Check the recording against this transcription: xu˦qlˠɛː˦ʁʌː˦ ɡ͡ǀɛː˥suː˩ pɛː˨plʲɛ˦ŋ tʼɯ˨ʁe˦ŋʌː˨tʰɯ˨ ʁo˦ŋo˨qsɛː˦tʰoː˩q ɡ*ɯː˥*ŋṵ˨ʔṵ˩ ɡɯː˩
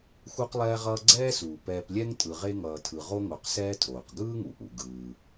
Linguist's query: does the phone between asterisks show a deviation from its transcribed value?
no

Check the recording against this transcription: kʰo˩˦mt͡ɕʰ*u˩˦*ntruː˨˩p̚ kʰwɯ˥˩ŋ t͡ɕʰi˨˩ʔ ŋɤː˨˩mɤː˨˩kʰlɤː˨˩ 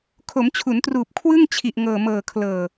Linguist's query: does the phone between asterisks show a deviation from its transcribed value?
no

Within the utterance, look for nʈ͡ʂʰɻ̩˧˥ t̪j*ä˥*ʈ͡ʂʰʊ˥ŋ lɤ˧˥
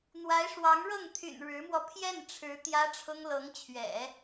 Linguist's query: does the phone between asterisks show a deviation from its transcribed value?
no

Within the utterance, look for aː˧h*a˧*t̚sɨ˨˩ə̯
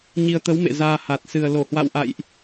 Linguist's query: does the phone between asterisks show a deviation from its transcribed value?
yes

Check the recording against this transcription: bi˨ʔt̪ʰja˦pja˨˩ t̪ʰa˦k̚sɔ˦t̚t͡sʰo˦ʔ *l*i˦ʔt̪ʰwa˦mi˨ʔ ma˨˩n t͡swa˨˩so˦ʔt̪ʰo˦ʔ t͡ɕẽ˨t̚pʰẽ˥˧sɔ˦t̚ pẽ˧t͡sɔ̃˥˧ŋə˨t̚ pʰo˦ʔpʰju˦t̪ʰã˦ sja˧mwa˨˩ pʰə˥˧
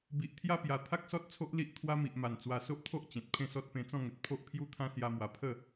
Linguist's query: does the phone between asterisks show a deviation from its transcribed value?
no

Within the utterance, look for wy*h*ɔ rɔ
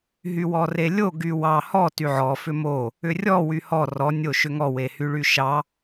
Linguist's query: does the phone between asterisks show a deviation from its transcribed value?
no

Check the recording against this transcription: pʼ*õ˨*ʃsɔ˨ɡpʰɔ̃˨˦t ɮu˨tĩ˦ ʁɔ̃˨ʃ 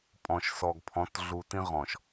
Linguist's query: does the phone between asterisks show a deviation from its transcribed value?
yes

